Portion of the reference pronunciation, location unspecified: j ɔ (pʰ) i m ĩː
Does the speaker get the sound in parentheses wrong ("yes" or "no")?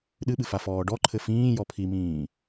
no